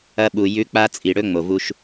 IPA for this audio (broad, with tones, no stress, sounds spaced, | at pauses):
ɐ˧ ɓ u˨ j ʉ˨˦ k͡p a˧ t͡sʼ i˨ ɽ ɵ˧ ŋ͡m o˨ v u˧ ʃ